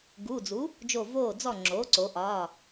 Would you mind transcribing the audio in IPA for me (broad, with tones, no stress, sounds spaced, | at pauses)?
ɡ u˩˧˩ d͡z u˩˥ | d͡ʒ o˧˩ v oː˧˩ d͡z ɔ˧˩ ŋ͡ǁ oː˩˥ ǀ o˩˧ ʔ ɒː˩˧˩